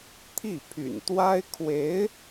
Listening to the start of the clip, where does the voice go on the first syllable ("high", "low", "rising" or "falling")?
falling